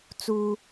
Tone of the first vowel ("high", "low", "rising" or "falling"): high